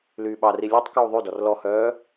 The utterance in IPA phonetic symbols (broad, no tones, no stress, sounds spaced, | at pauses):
l yː ɓ ɑ r i lʲ ɔ tˤ k uː ðˤ ʉ d ɔ r l ɔ h œː